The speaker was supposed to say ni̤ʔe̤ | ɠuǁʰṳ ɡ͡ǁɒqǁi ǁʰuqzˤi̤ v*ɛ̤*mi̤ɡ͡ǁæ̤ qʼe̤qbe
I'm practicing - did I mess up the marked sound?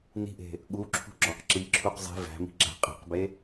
yes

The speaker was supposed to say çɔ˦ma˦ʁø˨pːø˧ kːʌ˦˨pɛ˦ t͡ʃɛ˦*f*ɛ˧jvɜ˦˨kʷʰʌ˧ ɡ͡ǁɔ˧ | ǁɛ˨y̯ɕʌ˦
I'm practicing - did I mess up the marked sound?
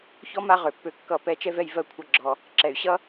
yes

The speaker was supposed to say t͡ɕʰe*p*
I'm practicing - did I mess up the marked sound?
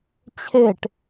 yes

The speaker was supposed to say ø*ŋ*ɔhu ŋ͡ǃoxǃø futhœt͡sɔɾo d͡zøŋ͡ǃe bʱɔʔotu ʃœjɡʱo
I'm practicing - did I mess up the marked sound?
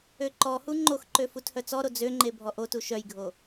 yes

